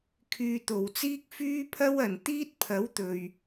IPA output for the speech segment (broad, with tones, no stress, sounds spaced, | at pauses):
kʰ yː˧ t̪ o˨ w t͡s iː˥ k̚ f yː˥ pʰ ɐ˥ w ɐ˨ n t̪ iː˥ t̚ pʰ ɐ˨˥ w t̪ ɵ˨ ɥ